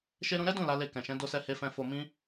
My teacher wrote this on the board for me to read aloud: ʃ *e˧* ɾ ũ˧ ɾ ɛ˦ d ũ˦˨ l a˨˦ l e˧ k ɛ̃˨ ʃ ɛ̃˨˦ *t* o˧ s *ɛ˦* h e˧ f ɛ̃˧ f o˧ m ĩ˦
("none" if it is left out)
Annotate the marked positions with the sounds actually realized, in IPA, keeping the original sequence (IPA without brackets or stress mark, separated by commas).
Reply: e˧, d, ɛ˧